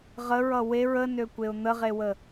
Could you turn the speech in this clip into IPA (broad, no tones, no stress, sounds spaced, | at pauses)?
ʁ ə ɹ ʌ w e ɹ ə n ø kʷ e ʊ̯ n̪ ə ʁ e w ə